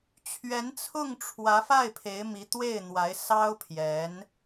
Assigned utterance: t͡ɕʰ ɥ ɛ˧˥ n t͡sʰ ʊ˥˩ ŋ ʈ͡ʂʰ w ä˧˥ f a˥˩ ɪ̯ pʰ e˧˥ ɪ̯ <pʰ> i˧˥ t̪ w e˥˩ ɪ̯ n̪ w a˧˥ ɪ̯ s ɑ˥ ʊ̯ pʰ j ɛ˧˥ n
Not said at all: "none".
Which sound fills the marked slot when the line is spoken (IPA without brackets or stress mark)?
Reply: m